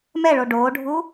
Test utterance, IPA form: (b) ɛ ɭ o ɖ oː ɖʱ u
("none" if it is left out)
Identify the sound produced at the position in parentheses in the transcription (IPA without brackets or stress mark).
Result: m